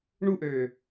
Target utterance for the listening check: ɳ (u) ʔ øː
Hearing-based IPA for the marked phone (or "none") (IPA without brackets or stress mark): u